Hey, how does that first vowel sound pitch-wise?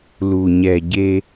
low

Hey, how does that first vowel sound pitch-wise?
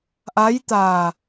rising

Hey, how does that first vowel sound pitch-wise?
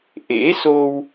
rising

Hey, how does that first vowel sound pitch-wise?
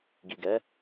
low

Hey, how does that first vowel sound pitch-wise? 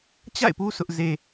falling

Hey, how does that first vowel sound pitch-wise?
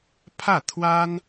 falling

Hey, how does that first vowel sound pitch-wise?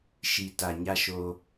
low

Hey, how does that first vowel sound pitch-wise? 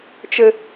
high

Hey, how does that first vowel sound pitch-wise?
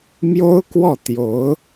high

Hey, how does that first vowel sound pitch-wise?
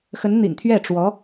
rising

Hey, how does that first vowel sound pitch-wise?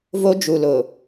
high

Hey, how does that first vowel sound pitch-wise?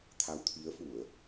rising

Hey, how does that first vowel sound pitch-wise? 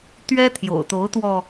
high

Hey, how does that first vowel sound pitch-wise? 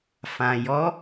low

